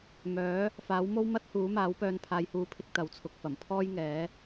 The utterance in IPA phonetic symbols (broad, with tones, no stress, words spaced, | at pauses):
mœː˨˥ | faː˨˥wmo˥w mɐ˥t̚huː˨˥maː˨˥wpœː˧n pʰaː˨˧jhuː˨˥pʰɪ˧k̚ t̪ɐ˨˥wt͡sʰʊ˨k̚fɐ˨˩m pʰɔː˥jŋɛː˨˥